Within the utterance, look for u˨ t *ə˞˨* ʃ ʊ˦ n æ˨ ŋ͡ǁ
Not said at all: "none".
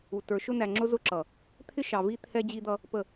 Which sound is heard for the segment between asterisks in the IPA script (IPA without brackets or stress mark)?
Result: ə˞˨